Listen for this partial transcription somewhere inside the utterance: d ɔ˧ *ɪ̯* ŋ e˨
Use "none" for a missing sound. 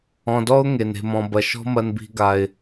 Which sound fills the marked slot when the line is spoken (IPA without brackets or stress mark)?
ʊ̯